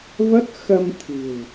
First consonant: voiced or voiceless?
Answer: voiced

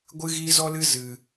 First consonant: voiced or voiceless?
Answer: voiced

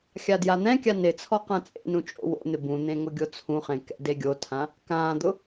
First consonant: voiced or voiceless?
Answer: voiceless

